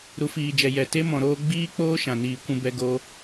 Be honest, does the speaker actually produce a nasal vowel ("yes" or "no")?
yes